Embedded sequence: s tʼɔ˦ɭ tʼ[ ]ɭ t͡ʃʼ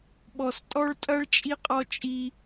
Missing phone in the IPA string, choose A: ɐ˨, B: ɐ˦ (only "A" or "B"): B